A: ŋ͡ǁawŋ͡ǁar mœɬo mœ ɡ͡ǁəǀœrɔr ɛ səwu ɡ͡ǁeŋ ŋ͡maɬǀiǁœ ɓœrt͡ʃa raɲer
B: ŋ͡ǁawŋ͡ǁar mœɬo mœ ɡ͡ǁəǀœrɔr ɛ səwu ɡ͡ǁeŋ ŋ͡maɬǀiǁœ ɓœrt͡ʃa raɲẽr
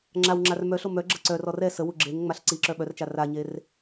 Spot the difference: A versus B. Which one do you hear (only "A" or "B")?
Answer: A